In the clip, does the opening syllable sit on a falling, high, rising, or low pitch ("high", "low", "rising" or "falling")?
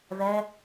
high